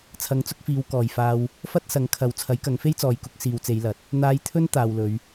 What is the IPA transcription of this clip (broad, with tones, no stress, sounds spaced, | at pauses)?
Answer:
t͡sʰ ɐ˨˥ ŋ t͡s ʊ˧ k̚ f iː˨˧ w k ɔː˨ j f aː˧ w | f ɐ˥ t̚ s ɐ˨˥ ŋ kʰ ɐ˨˧ w t͡sʰ ɐ˨˥ j k ɐ˨˧ ŋ f e˥ j t͡s ɔː˨˧ j k ʊ˨˥ k̚ s iː˨ w t͡s e˨˧ j l ɐ˨˥ t̚ | n̪ aː˧ j t̪ʰ ɵ˥ n t̪ aː˨ w l ɵ˨˧ ɥ